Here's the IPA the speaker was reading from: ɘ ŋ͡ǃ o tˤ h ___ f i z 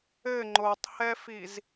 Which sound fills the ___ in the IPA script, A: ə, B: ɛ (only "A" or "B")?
B